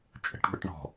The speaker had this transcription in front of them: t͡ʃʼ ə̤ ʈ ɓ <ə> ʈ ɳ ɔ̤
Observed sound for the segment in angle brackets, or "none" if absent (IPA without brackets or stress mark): ə